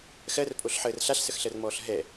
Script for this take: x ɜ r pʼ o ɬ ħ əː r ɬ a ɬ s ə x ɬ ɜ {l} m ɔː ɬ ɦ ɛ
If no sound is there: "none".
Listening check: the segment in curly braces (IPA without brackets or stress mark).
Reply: r